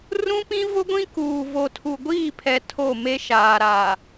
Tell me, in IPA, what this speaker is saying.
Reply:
rũ˦pĩ˦ vʊ˦ɡʷĩ˦kuː˨ vo˨tʰu˨ɡʷiː˦˨pʰɛ˨ tʰo˦˨me˦ʃaː˨ ɾa˨

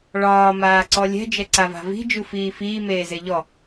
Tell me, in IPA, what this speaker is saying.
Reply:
ɭɒː maːǀɔlʲɛ̤ d͡ʒɛǀava̤vi̤ d͡ʒufiːfiː meːzeʎɔ

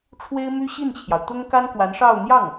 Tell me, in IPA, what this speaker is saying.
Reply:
ʈ͡ʂʰwe˥ɪ̯my˥ ɕi˥˩nt͡ɕʰjɑ˩ʊ̯ t̪ʊ˥ŋka˥nkwa˧˥nʂɑ˥˧ʊ̯ n̪jɑ˥˩ŋ

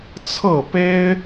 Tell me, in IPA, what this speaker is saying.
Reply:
t͡sʰɤ˥˨pe˦ɪ̯

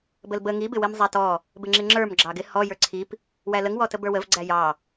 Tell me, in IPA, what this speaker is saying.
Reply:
bəlbə ŋi bɪwimzˤætɔ | bɪŋ͡ǁɪŋ͡ǁə˞m ɡ͡ǁɑɡɪ hɔ jə˞ǀʰip | wæləŋ wɔtəbə˞wəv ɡ͡ǀæjɑ

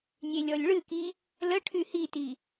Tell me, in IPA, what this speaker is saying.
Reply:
nʲelʲɔlʲɭɨki | ləʈʰy hiti

